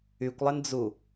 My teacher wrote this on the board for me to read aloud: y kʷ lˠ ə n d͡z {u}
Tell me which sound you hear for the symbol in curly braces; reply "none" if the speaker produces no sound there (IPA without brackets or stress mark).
u